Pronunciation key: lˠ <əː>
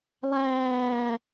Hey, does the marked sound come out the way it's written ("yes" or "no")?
no